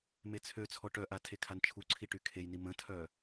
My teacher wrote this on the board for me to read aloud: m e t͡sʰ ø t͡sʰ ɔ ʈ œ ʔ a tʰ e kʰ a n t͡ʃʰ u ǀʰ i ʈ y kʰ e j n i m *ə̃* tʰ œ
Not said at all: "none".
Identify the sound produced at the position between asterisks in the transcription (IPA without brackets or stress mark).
ə̃